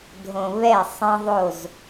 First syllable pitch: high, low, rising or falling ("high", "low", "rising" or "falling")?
low